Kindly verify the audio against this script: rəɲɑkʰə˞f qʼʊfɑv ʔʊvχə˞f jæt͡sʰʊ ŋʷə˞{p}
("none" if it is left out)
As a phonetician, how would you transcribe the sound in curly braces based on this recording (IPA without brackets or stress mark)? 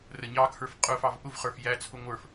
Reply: f